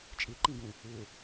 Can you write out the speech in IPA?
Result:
t͡ʃʼiǃĩɡũ | u

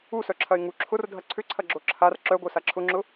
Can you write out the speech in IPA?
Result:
usœǁʰɐɪ̯ ŋu ǁʰʊr dʱɐǀʰʏǀʰɐɡ͡ǁo ǁʰar ǁœɡʷœ saǁʰʊŋ͡ǁʊ

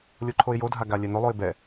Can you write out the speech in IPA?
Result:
lʲoǃʰoɪ̯jodʱa ɡalʲɛnolˠoɪ̯ bɛ

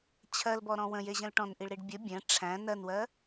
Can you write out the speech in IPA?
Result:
t͡ɕʰɜlbɔɾɔ̃ wə̃jeʑə̃l ʈɔ̃nʔiɭɾiɖ bʲə bʲæ̃ ʈ͡ʂʰæ̃ nɜnwɜ

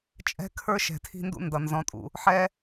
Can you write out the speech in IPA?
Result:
t͡ʃʼɛ̤˦kʰə˞˦ ʃɛ̤˨tʰi̤˦ndṵ˦ndʌ˨ nzɔ̃˦tʼṵ˦ | ħɛ˦

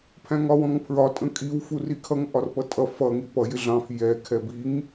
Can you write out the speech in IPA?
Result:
pʰæ̃ŋɒwɔ̃ŋpʰɹɒ tʼə̃kʼiw furikʰʌŋ ʔɒrpʌtʼʌ fʌ ŋipʌ jɪɮɑ̃f jɛ kʰɛbiŋ

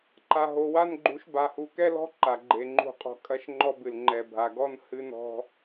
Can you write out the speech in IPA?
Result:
ǃa˨ɦo˨wa˦nɡ͡ǃu˨˦ʃ ba˨hu˨kɛ˦lɔ̤˦ ǃa˨ɡ͡ǃe˨ŋ͡ǃṳ˦˨qʼɔ̤˦ kʼɐ˦ʃŋ͡ǃɔ˦bɨ˨l ŋ͡ǃɛ˨bʱa˨ɡɔ˦n hɨ˦nɔ̤˦

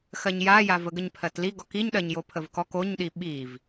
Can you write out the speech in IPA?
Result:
xɜɲjajav əɡəɲpʰɜtli ɡɔkiɲɗɜɲjo pʰəvkɔk oɲɗi ɓiv

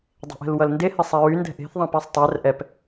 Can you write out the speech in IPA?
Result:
dˤe̤ʔɛ̤lwʌlnde hɛsˤɛɹy ndɛ̤ʔe̤θ ðˤɛ̃pæsˤtˤær ʔɛp

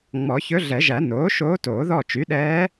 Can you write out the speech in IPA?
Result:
ŋ͡mɔ˨˩˦çɵ˧˥ɮɛ˨˩˦ʒæ˨˩˦ noː˩˥ ʃoː˧˥toː˨˩˦ðɔ˦˨ t͡ʃy˩˥ɗɛː˧˥

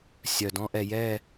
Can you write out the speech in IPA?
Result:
sʲœ˨dɔ̃˦ʔɛ˨jɛ˦˨

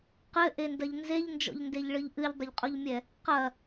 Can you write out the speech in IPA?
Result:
qɘʔendɐʎ nzeʎnd͡ʒɔ̰ʎndeʎɭɨʎ ʔɨʎdˤɘʎqʼoʎmʲɛ | qɐ

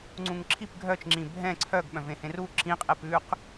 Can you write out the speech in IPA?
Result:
ŋ͡ǀũŋǁʰip ɡʱœt͡ʃŋ͡ǁĩ bʱɛ̃ ǀʰœɡɓœ̃vẽ hẽru ǁĩqʼep ʉq

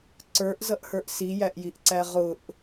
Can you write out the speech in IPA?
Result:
ǀə˞ʔzʌʔhə˞ʔ sijæʔjiʔǀæ ʁʊʔ

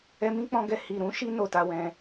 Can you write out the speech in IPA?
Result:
ɛ˧mĩ˦k͡pɔ̃˧ɡɛ˧ hi˨ɾũ˨˦ʃi˧ no˨ta˧wɛ̃˧

